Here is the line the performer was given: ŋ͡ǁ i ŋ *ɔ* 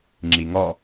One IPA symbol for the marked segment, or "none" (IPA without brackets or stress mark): ɔ